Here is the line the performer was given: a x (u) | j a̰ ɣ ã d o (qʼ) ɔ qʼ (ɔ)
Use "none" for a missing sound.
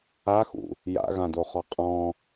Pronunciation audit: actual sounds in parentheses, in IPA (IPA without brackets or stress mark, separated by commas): ṵ, χ, ɔ̃